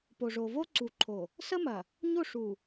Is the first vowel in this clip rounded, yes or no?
yes